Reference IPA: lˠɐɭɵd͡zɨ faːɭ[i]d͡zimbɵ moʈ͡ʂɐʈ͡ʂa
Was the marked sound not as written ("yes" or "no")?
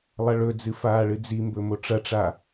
yes